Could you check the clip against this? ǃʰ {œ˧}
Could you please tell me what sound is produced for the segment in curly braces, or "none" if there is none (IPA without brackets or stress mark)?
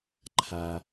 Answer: æ˧